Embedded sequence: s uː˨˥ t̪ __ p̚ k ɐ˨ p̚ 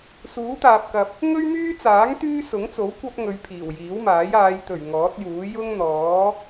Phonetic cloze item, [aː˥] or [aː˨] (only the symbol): aː˨